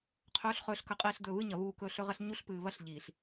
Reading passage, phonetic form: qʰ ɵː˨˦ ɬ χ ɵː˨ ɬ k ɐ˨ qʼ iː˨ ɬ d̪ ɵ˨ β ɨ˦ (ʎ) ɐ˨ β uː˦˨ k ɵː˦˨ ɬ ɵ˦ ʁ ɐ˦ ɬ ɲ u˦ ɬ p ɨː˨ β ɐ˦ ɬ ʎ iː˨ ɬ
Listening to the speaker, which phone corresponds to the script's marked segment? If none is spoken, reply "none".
ɲ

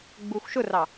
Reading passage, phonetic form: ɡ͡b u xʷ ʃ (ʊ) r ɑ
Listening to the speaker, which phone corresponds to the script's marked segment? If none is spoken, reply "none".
ʊ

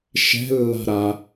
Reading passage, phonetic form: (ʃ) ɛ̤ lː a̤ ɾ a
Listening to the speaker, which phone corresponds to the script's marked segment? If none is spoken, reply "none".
ʃ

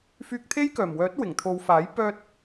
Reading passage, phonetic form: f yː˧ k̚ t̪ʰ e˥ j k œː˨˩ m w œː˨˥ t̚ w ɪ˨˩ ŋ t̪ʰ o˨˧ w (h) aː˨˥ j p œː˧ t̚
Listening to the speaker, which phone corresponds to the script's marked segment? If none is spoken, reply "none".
f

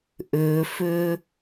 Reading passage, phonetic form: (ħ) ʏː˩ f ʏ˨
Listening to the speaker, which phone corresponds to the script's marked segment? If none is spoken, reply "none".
ʔ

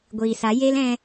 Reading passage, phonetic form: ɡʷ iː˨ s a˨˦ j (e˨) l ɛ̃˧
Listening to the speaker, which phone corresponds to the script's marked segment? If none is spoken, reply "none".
e˦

